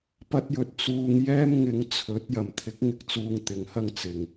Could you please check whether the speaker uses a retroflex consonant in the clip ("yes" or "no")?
no